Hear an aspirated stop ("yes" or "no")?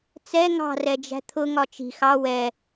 yes